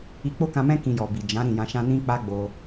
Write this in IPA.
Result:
i˧ k͡p o˦ k ã˧ m ɛ̃˦ k ĩ˧ j ɔ˨ b i˨ d͡ʒ ã˨˦ ɾ ĩ˦˨ j ã˧ ʃ ã˦ n ĩ˦ k͡p a˦ ɡ͡b o˧

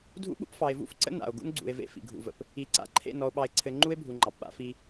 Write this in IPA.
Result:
dʱ ṵ˦ ɓ ṵ˦ p f ɑ˨ e̯ v ṵ˦ f ǀ ə̰˦ n a̰˨ o̯ ɡ ṵ˦ n ɡ͡ǀ ṵ˨ e̯ v ḛ˦ f ḭ˨ ɡʱ ṵ˨ v ə̰˨ p | i˨ ǀ a̰˨ ǃʰ ḛ˦˨ n ɔ˨ o̯ ɓ ɑ˨ e̯ ǀʰ ɘ˨ ŋ͡ǃ u˦ e̯ bʱ u˨ ŋ͡ǃ ɑ˨ p ɓ a̰˦ f i˦

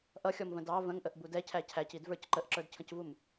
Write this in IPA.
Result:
ʔ ʌ xʲ ɔ m v ə̃ d ɑ v ə̃ ŋ ʔ ə ʔ b u d ɛ cʰ æ cʰ æ c i d v ə˞ c ǃ ə ʔ ǁ ə˞ d cʰ ə̃ c v u m

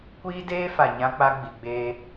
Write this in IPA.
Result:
kʷ iː˦ d eː˦ f a˨ ɲ ã˦ k͡p a˦ ɡ͡b i˨ ɡ͡b eː˦

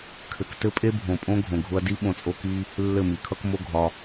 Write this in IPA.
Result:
kʰ ɘ˨ k t ɘ˦ pʼ e˦ bʱ õ˨ pʼ õ˦ ɡʱ õ˨ ɡʱ ʊ˧ ɐ̯ d i˦ ɓ õ˧ t͡sʼ o˦ k i˦ | lː ɘ˦˨ m i˨ kʰ ʌ˦ k m o˦ ɡʱ ɒ˧

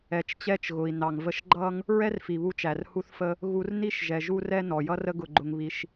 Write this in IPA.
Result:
ɛ˩ t͡ʃ t͡ɕ ɛ˧ t͡ʃ ɣ ʊ˩ i̯ n ɑ˩ ŋ v ə˧ ʃ ɡ͡ǃ ʌ˥ ŋ | ɹ ɛ˥ r f i˩ β u˧ t͡ʃ æ˩ r h u˧ θ f ə˧ | ɣ u˧ r n i˥ ʃ ʒ ɛ˩ ʒ u˧ r ɛ˧ n ɔ˩ j ʌ˥ r ə˥ ɡ ʊ˧ ɡ͡ǃ ʊ˧ ŋ β i˧ ʃ

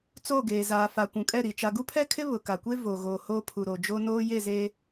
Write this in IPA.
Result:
t͡s o˦˨ ɡ eː˨ z aː˨ f a˨ kʷ ũ˨ kʼ ɛ˦˨ ɾ i˨ t͡ʃ a˨ ɡ u˦ pʰ ɛ˦ kʰ ɪ˦ β ʊ˨ k a˨ kʷ e˦ v o˨ ɣ o˨ h o˦ pʰ u˨ ɾ o˨ d͡ʒ o˦ n oː˦ j e˦˨ z eː˦

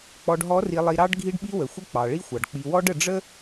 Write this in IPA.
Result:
k͡p ɔ˨ ɖ ɦ ɔ˨˦ r i˨ lˠ i˨ ɾ ɑ˦ ɖ ɡʱ i˦ ɖ ɓ i˦ w ə˨ xʷ ə˦ k͡p ɑ˨ ɭ i˦ xʷ ɑ˨ ɖ k͡p i˨ w ɔ˦ ɖ ə˨ ɖ͡ʐ ə˦

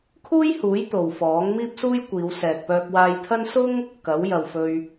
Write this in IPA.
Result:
kʰ uː˥ j h uː˨˥ j t̪ o˨ w f ɔː˨˥ ŋ m iː˥ p̚ s uː˥ j kʷ iː˨˧ w s ɛː˨ k̚ p œː˧ k̚ w aː˧ j t̪ʰ ɐ˥ n s ʊ˥ ŋ | k ɐ˨˥ w j ɐ˨ w f ɵ˧ ɥ

